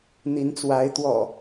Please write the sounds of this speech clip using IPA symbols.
n̪i˨˦nt͡swa˨˦ɪ̯t̪wɔ̰˨˩

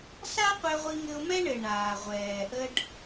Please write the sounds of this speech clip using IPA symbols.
sa˥qʷɛ˧ʁʷi˧ ŋɘ˧ʊ̯mɛ˥ɳɘ˩ ɳaː˩ʁʷɛː˩ ʔə˧ɖ

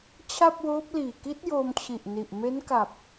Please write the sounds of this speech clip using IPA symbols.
t͡ɕʰa˥˩p̚woː˦˥p̚liː˨˩ ki˦˥t̚ joː˧mt͡ɕʰi˨˩ʔ ni˨˩ʔ me˦˥nka˨˩p̚

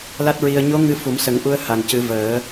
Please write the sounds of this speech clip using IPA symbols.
la˦˥t̚ɹi˧ə̯ ɲo˧˥ ŋɨ˧fu˨˩˦msə˨˩˦ŋ ʔu˧ə̯ ha˨˩ncɨ˨˩˦vəː˨˩˦

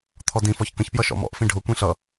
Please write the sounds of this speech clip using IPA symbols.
t̪ʰɔdĩfɔç kə̃çpjʌ ʃɔ̰mɔ̰ʔfĩ ɖʱʊkʷĩ ɬʌ

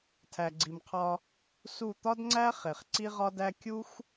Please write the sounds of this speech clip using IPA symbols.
tʰæ˨ɡ͡ǀi˨mqʰɒ˧ | su˦˨ t̪ɒ˦dŋ͡ǀæ˦ χe˨χ ǀi˦ʁɒ˦dæ˦ kʲu˦x

